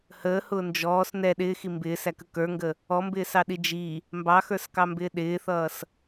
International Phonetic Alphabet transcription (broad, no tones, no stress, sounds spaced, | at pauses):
h əː h ʊː n d͡ʒ ɔː s n ɛ ɗ ɪː x i m b ɪː s æ k ə k ə˞ ŋ ɡ ə | ɔ m b ɪː s ɑ ɗ i d͡ʒ i | m b ɑ x ə˞ s k ɑ m b ɪː ɗ ɪː θ ʌː s